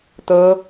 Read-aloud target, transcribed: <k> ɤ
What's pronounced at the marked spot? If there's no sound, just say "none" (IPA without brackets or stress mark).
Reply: t̪